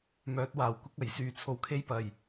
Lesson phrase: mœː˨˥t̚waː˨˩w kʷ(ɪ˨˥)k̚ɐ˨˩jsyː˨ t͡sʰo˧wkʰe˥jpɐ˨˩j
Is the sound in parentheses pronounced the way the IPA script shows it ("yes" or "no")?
no